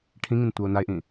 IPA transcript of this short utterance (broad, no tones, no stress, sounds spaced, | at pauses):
ʈʰ ĩ ŋ ĩ n tʷ a ʊ̯ n a ɪ̯ ʔ ĩ